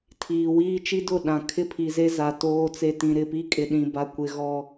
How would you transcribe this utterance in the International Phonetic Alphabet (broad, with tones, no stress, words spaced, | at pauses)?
tʰiː˨wiː˦ t͡ʃi˦dʊ˦˨ ɗã˨ kʰɪ˦pʰi˨ze˦ za˨ toː˦t͡se˦ tĩ˨ɾɪ˦˨pi˦ kʼɪ˨ɗĩ˨ ba˨kʷɪ˨ ɣɔ˦